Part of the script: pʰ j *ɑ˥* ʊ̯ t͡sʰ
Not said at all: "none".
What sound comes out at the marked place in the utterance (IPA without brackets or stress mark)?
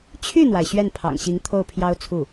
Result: ɑ˥